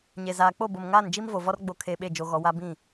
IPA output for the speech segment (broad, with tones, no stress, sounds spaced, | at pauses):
ɲ e˨ z aː˨ k͡p o˦˨ b o˨ m ŋ aː˦˨ n d͡ʒ i˦ m v o˨ v ɔ˦ r ɡ͡b o˨ kʰ e˨ ɓ e˦˨ d͡ʒ o˨ ɣ ɔ˨ w a˦ b ĩ˦˨